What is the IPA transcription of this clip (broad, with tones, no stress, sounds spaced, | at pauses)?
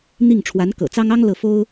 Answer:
n̪ i˥˩ ŋ ʈ͡ʂʰ w a˧˥ n k ɤ̰˨˩ t͡s ɑ˥ ŋ ɑ˥ ŋ l ɤ˥˩ f o˥ ʊ̯